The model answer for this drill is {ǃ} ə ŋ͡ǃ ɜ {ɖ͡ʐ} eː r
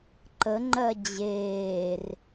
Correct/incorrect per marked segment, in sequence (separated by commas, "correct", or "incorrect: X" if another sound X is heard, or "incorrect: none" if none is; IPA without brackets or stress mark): correct, incorrect: d͡ʑ